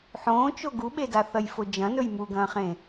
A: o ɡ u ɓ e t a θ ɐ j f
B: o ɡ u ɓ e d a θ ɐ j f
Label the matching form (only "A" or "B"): B